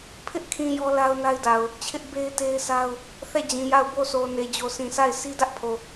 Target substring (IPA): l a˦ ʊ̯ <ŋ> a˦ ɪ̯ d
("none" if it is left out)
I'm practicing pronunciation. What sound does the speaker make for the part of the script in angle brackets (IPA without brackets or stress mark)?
n